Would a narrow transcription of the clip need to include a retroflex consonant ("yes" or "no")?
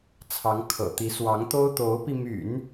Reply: no